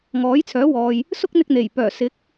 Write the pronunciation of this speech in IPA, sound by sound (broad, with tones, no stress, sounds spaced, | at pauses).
ŋ ɔː˨˥ j t͡sʰ œː˨˥ w ɔː˨ j | s ʊ˥ k̚ n̪ ɪ˧ k̚ n̪ e˨˩ j p œː˨˩ s ɪ˨˥ k̚